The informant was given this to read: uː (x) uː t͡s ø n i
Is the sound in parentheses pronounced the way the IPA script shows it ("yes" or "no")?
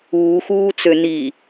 yes